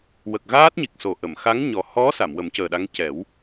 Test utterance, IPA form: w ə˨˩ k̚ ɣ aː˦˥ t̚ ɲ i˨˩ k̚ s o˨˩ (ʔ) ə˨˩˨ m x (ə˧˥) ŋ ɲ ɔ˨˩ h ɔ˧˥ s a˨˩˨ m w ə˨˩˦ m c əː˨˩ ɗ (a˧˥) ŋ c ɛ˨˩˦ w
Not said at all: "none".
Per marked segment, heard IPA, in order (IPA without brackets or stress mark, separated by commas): ʔ, a˧˥, a˧˥